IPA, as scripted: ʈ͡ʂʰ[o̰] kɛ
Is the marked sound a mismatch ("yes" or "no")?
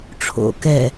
no